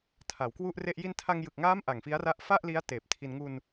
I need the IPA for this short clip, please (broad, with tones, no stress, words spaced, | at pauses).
tʰa˩˦wkwu˥˩ʔre˥˩ʔ ji˧ntʰa˧ŋjɯ˨˩k̚ŋaː˦˥m ʔa˨˩ŋfi˦˥a̯ra˦˥ʔ fa˥˩ʔli˦˥a̯ teː˨˩p̚tʰi˧n ŋu˧n